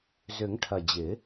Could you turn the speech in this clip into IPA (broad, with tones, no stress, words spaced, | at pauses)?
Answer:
zʏ˨˩˦ŋʈʰɐ˨˩ d͡ʑɪ˨˩˦